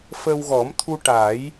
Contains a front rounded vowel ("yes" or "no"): no